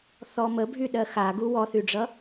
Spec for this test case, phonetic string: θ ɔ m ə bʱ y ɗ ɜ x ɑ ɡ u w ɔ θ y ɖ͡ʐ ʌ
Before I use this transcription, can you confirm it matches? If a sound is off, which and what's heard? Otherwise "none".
ɑ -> a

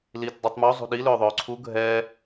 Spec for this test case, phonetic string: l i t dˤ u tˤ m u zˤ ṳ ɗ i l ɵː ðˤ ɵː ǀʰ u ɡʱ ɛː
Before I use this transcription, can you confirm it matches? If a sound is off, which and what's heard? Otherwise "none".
none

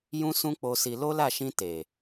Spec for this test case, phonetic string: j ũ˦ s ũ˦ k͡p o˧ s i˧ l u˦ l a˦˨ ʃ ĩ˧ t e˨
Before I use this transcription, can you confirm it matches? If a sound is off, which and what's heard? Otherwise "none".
u˦ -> o˦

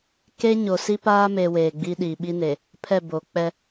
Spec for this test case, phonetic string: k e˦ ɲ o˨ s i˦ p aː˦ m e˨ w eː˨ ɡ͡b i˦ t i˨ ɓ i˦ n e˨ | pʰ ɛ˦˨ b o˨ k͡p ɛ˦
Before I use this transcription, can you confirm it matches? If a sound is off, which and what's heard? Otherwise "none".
t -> ɗ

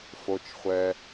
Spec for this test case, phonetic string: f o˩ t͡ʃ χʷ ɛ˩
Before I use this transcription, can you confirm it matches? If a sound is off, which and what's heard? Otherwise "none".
none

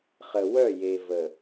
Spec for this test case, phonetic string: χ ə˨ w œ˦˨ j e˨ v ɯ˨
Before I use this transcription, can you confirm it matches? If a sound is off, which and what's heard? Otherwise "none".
ɯ˨ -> ə˨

